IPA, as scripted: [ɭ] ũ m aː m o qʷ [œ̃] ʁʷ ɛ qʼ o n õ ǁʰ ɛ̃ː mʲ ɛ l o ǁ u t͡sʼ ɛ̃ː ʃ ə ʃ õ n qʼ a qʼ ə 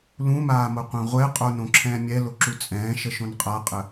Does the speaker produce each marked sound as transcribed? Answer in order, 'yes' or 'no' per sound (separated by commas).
no, yes